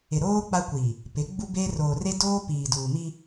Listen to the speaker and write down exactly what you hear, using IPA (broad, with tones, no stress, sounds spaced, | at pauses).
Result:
ɪ˨ ɾ oː˦ k͡p a˦ kʷ i˨ | p ɪ˨˦ ɡ͡b u˦ b e˦ r oː˨ r e˦ d oː˦ p iː˨ d uː˨ m i˦